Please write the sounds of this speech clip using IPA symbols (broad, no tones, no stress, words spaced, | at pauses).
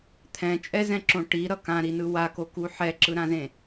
t̪ʰɛ̃t͡ʃʼɛzɛ̃ǁõ ʈiɾʌ kãɾinɯ wakoku ħɛǁɯɾãzẽ